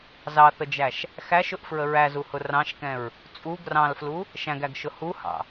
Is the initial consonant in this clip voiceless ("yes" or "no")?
no